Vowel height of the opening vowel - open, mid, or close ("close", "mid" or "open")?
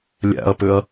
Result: open